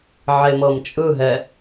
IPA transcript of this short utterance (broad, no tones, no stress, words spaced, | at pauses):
ʕemɤmt͡ʃʼɯɦɛ